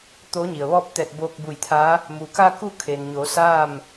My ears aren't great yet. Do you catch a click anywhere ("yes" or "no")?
no